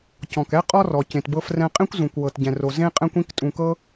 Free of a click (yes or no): yes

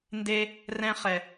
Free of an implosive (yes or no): yes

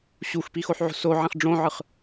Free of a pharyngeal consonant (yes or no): no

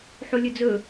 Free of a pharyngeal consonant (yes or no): no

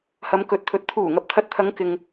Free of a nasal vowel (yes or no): yes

